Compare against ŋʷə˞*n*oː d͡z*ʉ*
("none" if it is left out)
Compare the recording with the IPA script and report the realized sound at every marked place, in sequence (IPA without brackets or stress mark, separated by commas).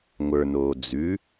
n, ʉ